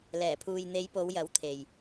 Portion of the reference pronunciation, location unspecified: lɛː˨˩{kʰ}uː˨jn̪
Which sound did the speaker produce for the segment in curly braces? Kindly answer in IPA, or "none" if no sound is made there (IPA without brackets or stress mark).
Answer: pʰ